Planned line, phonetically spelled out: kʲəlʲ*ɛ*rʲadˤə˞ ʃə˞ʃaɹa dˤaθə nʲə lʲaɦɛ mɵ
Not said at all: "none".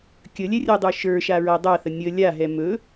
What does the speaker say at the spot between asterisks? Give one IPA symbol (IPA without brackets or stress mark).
ɛ